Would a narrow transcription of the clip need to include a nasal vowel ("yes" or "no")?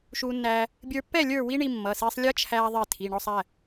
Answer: no